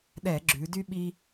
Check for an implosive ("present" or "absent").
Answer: present